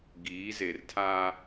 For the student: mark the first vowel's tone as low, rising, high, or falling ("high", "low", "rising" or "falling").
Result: rising